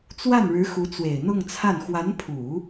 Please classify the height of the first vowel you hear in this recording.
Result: low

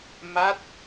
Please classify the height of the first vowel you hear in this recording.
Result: low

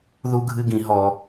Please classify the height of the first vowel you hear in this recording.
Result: high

